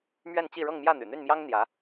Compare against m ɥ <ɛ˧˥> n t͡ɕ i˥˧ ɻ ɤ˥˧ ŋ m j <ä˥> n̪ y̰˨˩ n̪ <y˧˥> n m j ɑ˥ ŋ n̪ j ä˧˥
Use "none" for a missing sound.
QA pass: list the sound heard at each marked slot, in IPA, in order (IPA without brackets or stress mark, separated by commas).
ɛ˥˧, ä˥˩, y˥˩